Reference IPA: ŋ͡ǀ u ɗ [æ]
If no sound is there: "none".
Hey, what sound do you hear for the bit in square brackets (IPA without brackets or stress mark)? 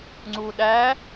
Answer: æ